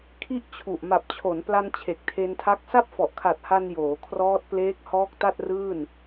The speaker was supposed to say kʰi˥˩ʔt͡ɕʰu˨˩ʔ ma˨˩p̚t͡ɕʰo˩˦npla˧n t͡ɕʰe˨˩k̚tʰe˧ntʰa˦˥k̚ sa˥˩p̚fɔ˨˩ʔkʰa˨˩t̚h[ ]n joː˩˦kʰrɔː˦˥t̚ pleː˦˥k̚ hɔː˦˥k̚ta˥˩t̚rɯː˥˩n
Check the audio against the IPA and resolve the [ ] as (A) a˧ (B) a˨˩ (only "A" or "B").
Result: A